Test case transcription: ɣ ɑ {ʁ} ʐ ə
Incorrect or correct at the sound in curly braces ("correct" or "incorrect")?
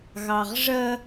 correct